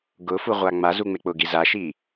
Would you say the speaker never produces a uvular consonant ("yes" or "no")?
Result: no